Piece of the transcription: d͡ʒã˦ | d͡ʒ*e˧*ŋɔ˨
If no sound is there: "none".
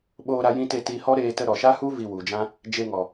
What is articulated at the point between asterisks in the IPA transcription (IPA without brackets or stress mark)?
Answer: e˧